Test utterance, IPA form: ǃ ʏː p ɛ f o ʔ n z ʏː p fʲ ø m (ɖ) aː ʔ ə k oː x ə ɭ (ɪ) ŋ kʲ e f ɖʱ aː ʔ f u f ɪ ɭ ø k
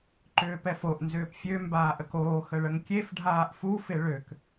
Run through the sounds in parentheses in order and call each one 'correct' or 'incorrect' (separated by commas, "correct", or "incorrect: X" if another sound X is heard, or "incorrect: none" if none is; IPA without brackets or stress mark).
incorrect: b, incorrect: ə